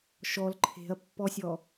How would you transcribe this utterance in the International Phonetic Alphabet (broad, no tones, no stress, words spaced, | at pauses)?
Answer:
ʃɔl ǃʰe̤ɐ̯pːɔsʲɔ